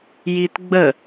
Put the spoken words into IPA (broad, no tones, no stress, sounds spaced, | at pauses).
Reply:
j i t ɡ͡b ə